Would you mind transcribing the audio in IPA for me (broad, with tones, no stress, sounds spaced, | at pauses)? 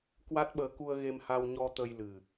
k w a˦˥ t̚ ɓ əː˨˦ k u˧ ə̯ ɣ e˧ m h a˧ w ɲ ɔ˧ t̪ ə˧ j l ɨ˨˩